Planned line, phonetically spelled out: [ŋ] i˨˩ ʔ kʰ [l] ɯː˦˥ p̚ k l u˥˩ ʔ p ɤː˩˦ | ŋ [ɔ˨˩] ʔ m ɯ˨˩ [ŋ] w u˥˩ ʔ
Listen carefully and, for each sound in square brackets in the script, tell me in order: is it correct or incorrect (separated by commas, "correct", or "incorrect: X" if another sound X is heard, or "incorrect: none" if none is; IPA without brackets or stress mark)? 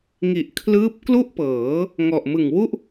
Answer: correct, correct, correct, correct